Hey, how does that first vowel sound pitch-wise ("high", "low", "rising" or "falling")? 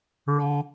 high